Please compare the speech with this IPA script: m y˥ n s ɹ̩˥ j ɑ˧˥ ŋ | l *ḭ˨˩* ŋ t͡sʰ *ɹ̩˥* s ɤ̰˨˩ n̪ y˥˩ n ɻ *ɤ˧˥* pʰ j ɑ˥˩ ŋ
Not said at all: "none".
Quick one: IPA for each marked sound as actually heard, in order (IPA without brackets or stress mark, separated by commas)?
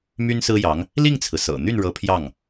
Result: i˥˩, ɹ̩˩, ɤ˧˥